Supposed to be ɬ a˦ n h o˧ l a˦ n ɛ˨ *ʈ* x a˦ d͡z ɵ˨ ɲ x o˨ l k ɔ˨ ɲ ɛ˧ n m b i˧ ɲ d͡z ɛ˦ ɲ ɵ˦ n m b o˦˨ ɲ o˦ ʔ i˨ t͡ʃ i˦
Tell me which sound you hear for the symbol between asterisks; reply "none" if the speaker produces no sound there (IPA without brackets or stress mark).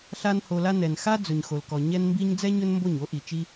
n